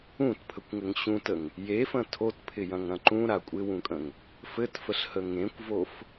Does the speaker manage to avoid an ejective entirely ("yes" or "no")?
no